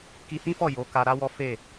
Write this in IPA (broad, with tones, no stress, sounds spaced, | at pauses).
k i˧ h ĩ˦ f ɔ˦˨ j o˨˦ k a˧ ɾ a˦ w ɔ˦ f e˦˨